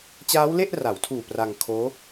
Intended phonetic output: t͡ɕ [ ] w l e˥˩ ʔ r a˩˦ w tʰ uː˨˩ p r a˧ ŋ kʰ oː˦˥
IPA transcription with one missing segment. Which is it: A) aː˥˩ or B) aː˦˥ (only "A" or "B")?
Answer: B